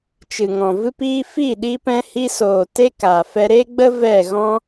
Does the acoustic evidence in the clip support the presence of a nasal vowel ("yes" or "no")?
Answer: yes